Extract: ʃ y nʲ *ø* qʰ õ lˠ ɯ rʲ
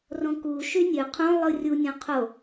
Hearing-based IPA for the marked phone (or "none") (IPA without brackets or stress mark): ø